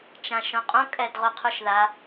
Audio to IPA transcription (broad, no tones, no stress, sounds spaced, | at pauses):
t͡ʃ ã ʃ õ qʼ õ kʼ ɛ d ʁ o qʰ u ʃ ð a